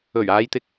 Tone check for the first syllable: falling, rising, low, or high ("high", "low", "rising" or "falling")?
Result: low